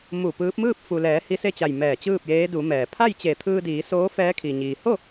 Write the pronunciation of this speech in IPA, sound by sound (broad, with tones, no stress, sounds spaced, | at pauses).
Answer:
m u˧˩ p ɯː˧˥ p̚ m ɯː˥˨ p̚ f u˩ l ɛː˩˧ h i˧ s e˥˨ t͡ɕ a˧˩ j m ɛː˧˩ t͡ɕ ɯː˥˨ p̚ j eː˧˥ d u˩˧ m ɛː˩ pʰ a˥˨ j t͡ɕ e˧˩ t̪ʰ ɯː˧ d iː˩˧ s oː˧˥ f ɛː˧˥ kʰ i˩ ɲ iː˩ h o˥˨